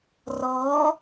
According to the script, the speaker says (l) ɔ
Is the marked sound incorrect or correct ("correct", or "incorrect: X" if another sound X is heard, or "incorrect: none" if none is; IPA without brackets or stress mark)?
incorrect: r